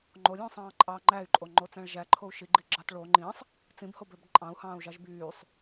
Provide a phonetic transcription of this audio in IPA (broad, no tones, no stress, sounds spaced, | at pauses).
ŋ͡ǃ o lʲ õː sˤ ɑ̃ː ǃʼ ɑː ŋ͡ǃ æ y̯ ǃʼ o ŋ͡ǃ o t͡s æ̃ ɭ ʒ æ ǃʰ o u̯ ʃ i ɡ͡ǃ i ɡ͡ǁ ɑ t ɭ o ŋ͡ǃ ĩ sˤ | t͡s ĩ b h o b ø b ǃʼ ɑ̃ u̯ h ɑ̃ː u̯ ʒ ɑ ʒ b yː sˤ